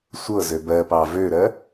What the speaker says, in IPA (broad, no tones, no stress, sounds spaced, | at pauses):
sʷ ɤ z ø b ɜ p ɑ v ø ɾ ɜ